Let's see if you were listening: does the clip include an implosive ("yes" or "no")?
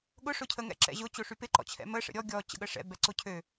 yes